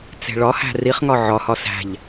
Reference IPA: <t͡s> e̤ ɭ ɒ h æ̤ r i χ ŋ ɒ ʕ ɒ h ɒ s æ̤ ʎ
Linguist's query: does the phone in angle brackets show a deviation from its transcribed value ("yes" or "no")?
no